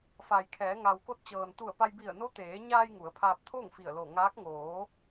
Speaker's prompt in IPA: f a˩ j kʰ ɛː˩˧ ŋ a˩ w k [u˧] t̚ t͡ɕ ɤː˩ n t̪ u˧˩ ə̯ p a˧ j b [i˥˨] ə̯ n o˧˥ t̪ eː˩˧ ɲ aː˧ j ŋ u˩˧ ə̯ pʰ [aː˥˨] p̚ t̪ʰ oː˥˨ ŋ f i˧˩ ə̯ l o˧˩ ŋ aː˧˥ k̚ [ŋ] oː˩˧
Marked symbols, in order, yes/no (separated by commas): no, no, no, yes